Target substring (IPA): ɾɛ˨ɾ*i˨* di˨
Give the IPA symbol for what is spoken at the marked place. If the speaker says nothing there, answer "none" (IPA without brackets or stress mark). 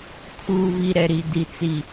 i˨